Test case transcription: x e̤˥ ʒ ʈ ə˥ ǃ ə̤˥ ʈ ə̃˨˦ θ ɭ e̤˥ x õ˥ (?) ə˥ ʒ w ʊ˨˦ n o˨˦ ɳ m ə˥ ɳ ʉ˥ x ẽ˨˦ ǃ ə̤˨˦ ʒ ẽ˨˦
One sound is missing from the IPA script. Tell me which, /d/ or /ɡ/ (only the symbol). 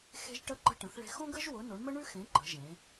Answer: ɡ